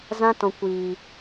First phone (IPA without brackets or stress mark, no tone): z